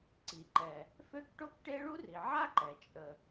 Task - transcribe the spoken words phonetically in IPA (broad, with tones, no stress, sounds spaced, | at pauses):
ǀ i˩ ǃ ɛ˩ | f ø˥ k ʈ o˥ k ʈ e˥ ɭ u˥ r i˩ ʕ a˥ ǃ ɛ˩ t͡ʃʼ ə˩